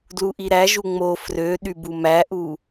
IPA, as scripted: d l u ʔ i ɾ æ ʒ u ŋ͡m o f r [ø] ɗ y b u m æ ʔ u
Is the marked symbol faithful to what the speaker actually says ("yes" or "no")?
yes